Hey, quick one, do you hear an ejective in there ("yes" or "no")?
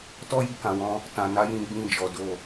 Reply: no